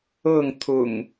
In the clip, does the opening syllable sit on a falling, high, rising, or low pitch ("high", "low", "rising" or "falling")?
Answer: falling